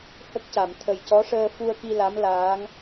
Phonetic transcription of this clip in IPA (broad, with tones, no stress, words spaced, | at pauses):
hə˦˥k̚ca˨˩˨m t̪ʰə˨˩jcɔ˧˥ʂəː˧ fu˧ə̯ki˧ la˧˥mlaː˧˥ŋ